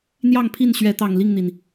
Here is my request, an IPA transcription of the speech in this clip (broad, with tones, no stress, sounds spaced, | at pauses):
n̪ j ɑ˥˨ ŋ pʰ i˥˨ n ɕ ɥ ɛ˨˦ t̪ ɑ˨˩ ŋ l i˥˨ ŋ n̪ i˩ n